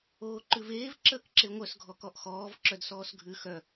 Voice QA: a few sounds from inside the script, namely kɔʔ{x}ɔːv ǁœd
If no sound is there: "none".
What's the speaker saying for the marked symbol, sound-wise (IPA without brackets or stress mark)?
x